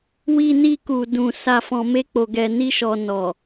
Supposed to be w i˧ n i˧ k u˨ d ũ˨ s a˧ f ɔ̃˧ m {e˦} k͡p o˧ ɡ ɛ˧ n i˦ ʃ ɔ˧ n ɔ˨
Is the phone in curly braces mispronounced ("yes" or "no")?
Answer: no